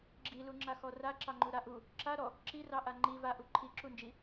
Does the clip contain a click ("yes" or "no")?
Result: yes